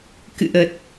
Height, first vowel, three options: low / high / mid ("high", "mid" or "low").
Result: high